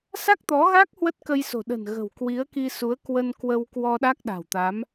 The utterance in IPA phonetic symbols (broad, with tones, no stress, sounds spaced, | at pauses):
s a˦˥ k̚ t̪ ɔ˨˦ ɣ a˦˥ k̚ h w ə˦˥ t̚ k ə˧ j s o̤˨˩ ɗ ə̤˨˩ n ɣ ə̤˨˩ w k w i˨˦ ə̯ k i˧ s u˨˦ ə̯ k w ə˧ n k w ə˧ w k w ɔ˧ ɗ a˦˥ k̚ ɗ a̤˨˩ w t̪ a˨˦ m